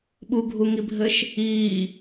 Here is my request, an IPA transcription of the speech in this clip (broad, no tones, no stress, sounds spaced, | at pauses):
ɓ u ɡʱ u ŋ i bʱ ɘ ʃ | iː